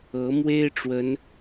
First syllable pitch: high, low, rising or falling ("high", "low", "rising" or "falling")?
rising